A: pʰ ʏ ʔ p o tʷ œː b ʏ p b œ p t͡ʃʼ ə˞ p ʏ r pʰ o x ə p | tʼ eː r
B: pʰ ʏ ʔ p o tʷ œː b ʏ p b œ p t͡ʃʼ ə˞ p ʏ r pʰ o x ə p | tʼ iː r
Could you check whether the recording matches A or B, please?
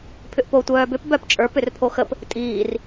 B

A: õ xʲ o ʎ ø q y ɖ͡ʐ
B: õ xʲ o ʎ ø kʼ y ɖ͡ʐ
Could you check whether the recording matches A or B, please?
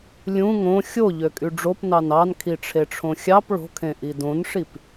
B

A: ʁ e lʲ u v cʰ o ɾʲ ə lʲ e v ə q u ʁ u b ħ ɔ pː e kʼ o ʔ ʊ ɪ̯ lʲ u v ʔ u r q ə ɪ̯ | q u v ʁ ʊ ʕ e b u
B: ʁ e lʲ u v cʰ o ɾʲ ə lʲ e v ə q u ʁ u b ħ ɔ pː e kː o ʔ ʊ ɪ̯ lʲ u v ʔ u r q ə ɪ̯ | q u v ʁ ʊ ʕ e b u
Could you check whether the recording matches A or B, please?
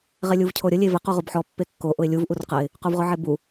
B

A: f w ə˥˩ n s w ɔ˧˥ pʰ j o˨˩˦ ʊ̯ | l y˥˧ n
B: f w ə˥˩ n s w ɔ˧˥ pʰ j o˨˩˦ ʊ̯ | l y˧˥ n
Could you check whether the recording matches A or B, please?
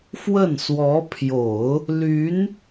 B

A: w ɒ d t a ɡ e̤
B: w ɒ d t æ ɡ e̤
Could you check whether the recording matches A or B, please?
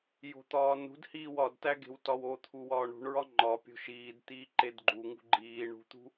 B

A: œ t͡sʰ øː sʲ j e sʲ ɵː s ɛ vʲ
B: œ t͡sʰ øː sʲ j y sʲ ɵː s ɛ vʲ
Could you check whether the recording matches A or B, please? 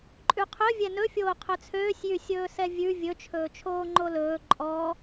B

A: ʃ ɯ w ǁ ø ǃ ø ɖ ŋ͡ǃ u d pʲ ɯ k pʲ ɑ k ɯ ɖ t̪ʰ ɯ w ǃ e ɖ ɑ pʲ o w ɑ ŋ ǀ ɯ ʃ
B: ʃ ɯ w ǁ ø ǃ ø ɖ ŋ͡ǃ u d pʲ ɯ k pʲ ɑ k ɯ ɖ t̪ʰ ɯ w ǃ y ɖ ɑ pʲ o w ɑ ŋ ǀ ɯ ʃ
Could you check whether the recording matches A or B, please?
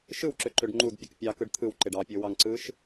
A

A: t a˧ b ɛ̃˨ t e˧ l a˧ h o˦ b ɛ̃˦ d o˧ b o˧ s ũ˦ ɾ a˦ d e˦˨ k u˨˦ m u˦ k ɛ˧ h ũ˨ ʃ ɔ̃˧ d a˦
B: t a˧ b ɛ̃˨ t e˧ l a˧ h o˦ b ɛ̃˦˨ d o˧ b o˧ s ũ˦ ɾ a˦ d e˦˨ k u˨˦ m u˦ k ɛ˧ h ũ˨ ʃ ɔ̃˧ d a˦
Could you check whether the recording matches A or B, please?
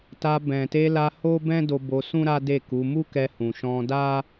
A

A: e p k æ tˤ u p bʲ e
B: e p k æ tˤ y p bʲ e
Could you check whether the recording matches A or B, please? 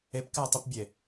A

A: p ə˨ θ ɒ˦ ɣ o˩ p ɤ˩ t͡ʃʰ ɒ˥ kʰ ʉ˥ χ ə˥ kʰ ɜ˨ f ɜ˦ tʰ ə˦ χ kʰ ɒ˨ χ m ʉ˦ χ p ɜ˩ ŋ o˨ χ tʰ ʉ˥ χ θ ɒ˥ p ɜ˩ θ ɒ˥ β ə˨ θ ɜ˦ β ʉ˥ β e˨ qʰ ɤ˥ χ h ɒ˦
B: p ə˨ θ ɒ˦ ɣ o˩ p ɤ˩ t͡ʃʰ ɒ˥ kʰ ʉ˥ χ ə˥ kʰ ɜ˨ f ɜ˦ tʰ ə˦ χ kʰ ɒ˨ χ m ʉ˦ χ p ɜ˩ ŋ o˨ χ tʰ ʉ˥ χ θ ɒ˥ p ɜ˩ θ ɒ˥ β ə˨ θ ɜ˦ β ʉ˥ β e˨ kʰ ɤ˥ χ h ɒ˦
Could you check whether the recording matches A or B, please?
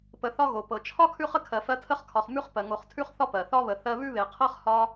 A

